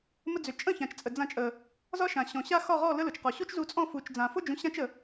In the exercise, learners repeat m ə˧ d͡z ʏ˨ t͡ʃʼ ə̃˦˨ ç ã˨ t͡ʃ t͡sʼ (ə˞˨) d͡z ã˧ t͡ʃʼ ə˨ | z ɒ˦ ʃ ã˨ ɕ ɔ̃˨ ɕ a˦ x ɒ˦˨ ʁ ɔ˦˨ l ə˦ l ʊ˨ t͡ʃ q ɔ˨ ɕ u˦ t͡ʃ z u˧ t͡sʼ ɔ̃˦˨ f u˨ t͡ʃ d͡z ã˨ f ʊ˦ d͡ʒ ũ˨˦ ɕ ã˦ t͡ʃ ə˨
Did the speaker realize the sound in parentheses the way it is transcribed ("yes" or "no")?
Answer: no